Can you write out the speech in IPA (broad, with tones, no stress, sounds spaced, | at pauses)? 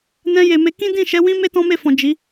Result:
n ɛ̃˧ j e˨ m e˧ k ĩ˦ d ĩ˦˨ ʃ ɛ˨˦ w ĩ˦ m e˦ t ɔ̃˦ m e˦˨ f ɔ̃˨ d͡ʒ i˨˦